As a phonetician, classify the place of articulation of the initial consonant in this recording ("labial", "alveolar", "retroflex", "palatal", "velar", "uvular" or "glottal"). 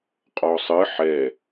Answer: uvular